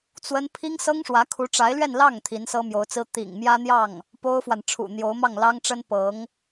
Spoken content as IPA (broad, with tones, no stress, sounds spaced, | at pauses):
t͡s w ə˥ n pʰ i˥ ŋ s ɤ˥ ŋ ʂ w ä˧˥ kʰ u˧˥ ʈ͡ʂ a˧˥ ɪ̯ l ɥ ɛ˥˧ n l ɑ˥˩ ŋ t̪ʰ i˧˥ n s ɤ˥ m j o˧˥ ʊ̯ t͡s ɹ̩˥ t̪ ḭ˨˩ ŋ m j ä˥ n̪ j ɑ˥˩ ŋ | p o˥ ʊ̯ f w a˨ n ʈ͡ʂʰ ṵ˨˩ n̪ j o˧˥ ʊ̯ m ɑ˥˩ ŋ l ɑ˥ ŋ ʈ͡ʂ ə˥ n p ɤ˧˥ ŋ